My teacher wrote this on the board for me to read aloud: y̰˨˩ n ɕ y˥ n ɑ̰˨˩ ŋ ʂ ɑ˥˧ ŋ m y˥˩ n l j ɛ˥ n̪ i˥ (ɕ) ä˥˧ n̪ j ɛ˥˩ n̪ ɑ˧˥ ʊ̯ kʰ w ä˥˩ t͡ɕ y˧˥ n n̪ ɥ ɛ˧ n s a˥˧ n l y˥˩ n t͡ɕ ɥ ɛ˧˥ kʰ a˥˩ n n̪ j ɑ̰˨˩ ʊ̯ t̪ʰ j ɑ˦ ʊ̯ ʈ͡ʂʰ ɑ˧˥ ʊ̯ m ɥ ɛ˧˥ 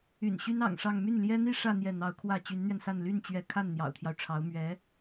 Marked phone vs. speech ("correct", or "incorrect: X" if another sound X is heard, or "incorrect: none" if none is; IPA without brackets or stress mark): incorrect: ʂ